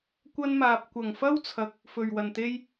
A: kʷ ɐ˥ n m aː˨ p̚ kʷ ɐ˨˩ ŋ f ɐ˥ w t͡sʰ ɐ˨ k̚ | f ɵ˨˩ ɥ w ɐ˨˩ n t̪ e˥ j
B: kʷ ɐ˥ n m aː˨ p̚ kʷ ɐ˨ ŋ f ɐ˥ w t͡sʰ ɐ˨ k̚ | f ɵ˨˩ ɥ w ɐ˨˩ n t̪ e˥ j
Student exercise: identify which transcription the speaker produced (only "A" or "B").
A